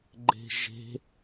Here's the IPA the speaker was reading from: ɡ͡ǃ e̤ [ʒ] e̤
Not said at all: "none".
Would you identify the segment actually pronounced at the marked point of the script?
ʒ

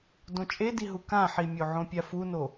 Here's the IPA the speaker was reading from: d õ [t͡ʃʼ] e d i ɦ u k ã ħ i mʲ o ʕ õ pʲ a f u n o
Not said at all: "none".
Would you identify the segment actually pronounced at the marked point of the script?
t͡ʃʼ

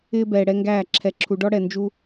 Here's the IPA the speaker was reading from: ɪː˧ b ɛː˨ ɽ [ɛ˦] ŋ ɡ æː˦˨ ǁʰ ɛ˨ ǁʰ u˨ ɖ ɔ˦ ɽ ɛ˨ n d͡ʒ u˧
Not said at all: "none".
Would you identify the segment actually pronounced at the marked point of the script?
ɛ˦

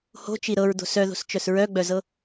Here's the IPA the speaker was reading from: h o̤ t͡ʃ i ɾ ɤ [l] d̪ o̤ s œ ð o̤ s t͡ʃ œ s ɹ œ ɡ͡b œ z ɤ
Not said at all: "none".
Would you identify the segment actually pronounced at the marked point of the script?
ɹ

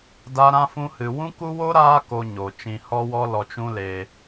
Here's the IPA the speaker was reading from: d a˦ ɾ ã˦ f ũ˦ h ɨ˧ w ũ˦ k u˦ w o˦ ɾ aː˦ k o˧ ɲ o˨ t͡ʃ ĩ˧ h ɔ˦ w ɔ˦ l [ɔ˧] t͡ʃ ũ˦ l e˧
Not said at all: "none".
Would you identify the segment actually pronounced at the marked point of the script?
ɔ˧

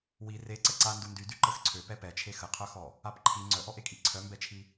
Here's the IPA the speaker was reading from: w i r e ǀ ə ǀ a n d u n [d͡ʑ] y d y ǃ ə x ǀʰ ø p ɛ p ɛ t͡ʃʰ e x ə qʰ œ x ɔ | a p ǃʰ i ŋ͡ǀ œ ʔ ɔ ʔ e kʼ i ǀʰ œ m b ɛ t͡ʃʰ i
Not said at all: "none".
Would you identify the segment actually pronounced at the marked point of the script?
d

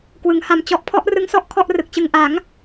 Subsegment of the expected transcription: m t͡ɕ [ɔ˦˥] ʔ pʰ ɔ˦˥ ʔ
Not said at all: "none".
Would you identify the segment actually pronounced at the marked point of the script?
ɔ˦˥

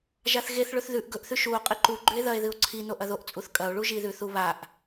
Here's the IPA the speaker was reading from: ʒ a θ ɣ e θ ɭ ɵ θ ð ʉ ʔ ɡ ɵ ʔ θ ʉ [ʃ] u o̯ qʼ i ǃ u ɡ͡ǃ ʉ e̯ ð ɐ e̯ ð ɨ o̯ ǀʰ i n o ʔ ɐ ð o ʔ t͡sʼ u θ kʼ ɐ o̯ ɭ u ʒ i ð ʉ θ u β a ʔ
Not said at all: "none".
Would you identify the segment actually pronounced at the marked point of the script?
ʃ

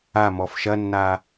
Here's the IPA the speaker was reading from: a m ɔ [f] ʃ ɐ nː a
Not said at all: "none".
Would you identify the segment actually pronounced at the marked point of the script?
f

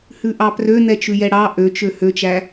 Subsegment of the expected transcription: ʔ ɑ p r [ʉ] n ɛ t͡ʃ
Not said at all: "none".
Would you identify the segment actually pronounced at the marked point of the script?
ø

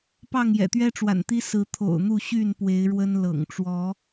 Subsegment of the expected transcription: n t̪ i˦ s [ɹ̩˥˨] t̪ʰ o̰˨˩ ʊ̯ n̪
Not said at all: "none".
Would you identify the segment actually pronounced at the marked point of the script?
ɹ̩˨˦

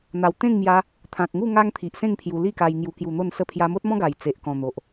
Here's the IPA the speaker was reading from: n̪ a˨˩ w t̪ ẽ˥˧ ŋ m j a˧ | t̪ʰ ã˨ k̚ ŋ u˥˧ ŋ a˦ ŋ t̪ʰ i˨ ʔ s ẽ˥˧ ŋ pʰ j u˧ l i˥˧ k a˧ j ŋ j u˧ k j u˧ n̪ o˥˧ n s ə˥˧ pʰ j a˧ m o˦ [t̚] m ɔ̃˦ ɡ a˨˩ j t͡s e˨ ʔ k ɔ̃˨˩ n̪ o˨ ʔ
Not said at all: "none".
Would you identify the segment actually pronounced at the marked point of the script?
t̚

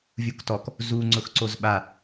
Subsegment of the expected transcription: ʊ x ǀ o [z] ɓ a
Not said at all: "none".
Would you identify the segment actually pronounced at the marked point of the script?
z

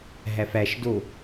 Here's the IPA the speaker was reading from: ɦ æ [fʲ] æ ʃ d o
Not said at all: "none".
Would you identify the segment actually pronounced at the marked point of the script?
f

